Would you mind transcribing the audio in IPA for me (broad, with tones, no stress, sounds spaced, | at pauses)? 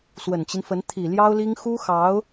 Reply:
s w ə˨˩ n t͡ɕ i˦ n f ə˧˥ n t̪ʰ i˨˩ l j ɑ˥ ʊ̯ l i˥ ŋ x u˥ x ɑ˧˥ ʊ̯